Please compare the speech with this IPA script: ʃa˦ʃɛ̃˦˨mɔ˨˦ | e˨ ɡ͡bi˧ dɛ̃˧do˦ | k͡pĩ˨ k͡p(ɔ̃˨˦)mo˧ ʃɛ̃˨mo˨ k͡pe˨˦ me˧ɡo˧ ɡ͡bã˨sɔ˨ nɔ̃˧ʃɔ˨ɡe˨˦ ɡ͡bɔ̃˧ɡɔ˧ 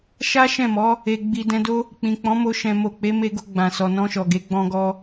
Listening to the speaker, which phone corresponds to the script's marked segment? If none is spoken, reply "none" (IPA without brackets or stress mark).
ɔ̃˨˦